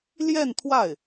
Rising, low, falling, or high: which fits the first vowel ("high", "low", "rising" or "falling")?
falling